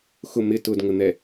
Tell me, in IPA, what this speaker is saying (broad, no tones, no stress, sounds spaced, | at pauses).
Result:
x ʊ m ɪ t ʊ d ŋ ə n̪ ɛ